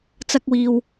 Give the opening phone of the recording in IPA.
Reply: t͡s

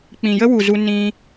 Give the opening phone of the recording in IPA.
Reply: k͡p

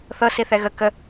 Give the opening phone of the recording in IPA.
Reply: θ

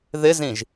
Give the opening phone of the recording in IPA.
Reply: ð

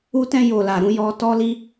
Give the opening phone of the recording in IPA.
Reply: u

